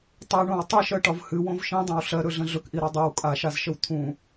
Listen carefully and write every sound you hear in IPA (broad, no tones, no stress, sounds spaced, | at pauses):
tˤ i ɳ õ w tˤ ɨ ʃ ɜ ʈ ɒ v h ɨ w õ v ʃ ĩ dˤ õ w ɬ ɜ ɾ ɵ ɮ ə̃ ɮ ɵ k ʔ i ɾ ɒ dˤ ɜ w kʼ a ʃ a z ʃ ə w t̪ʰ ũ